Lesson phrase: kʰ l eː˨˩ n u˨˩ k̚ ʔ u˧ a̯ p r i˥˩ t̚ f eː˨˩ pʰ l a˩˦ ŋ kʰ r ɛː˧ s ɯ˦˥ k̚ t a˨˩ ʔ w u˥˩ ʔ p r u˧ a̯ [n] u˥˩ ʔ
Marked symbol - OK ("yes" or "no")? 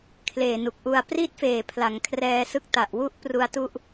no